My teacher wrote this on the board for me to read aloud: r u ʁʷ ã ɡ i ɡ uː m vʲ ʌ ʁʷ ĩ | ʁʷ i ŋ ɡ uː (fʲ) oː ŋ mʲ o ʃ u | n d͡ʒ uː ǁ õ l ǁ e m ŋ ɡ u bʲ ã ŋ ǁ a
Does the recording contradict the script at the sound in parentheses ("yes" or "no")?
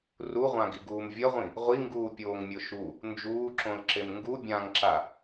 yes